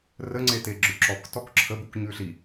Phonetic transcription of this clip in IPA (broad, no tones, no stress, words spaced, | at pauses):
rə ŋ͡ǀeteɡ͡ǁʉǁɔk tɔkǁʰə bukɲʉɬi